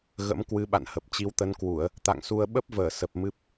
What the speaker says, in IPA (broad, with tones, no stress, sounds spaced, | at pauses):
ɣ ə̰˧˥ m k w ɨ˨˦ ɓ a̰˧˨ n h ə˨˩ p̚ t͡ɕ i˨˦ w t̪ ə˨˦ n k w u˧˩˨ ə̯ | t̪ a̰˧˨ ŋ s u˧ ə̯ ɓ ə˦˥ p̚ v əː˧˩ s ə˨˩ p̚ m ɨ˦˥ p̚